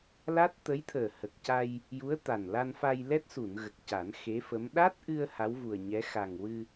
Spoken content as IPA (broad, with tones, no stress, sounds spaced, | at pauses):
l a˦˥ t̚ t̪ ə˧˥ j t̪ʰ əː˨˩ h ə˨˩ k̚ c a˧ j | j u˧˥ ə̯ t̪ a˨˩ n l a˧ n f a˧ j l ɛ˦˥ t̚ s u˨˩˨ n ɣ ə˨˩ k̚ c a˨˩˦ n x e˧˥ f ə˧˥ m ɗ a˦˥ t̚ ʔ ɨ˧ ə̯ h a˧˥ w v u˨˩ ə̯ ɲ ɛ˧˥ x a˨˩ ŋ w ɨ˧